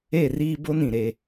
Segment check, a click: absent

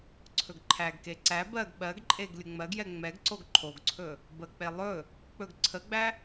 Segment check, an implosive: present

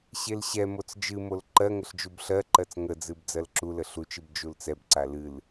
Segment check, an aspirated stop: absent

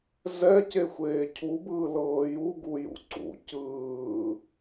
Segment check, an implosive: absent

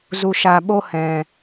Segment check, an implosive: present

